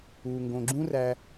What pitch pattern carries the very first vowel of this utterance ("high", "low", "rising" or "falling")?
low